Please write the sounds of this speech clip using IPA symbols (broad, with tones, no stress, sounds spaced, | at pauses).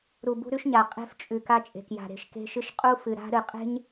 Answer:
ɾ u˨ b ṳ˦ ɾ ʉ˦ ʃ ɲ a˨ qʼ e̤˦ f t͡ʃʼ ʉ˨ k a˦ t͡ʃʼ e̤˨ k j a̤˨ ɾ e̤˨ ʃ k e̤˦ ʃ ɨ˦ ʃ qʼ u˦ f ɨ˨ ɾ a̤˦ ɾ ɨ˨ qʼ e̤˦ ɲ